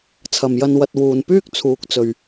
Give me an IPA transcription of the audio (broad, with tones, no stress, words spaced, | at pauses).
t͡sʰɐ˨mjɐ˧nwɐ˧t̚ wuː˨npyː˥k̚ t͡sʰuː˨k̚t͡sɵ˨ɥ